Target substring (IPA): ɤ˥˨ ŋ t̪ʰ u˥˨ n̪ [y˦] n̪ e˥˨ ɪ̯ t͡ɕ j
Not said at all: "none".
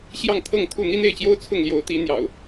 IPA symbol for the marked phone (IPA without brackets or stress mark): i˦